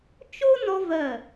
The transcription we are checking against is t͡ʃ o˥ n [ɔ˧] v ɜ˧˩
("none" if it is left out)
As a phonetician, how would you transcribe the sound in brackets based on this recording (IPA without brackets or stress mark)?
ɔ˧